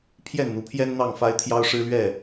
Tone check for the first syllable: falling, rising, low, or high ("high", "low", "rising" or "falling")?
falling